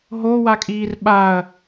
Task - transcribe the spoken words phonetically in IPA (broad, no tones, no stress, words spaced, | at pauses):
ɦo wakʼiːrɓaɐ̯